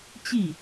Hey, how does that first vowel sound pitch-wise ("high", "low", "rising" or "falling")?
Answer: falling